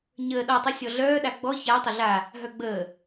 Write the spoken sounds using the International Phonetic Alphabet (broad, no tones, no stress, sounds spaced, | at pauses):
ɲ əː ɗ ɔ tˤ u sʲ ɔ ɮ œː ɗ a ɡ͡b ɔ ç a tˤ ə ɮ a | ɦ œ ɡ͡b əː